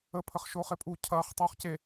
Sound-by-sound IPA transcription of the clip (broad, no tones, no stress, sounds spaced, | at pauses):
ə pʰ ə χ ʃ oː χ e pʼ u cʰ ɐː χ tˤ oː χ c e